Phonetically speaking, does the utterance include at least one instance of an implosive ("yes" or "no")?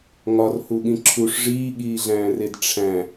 yes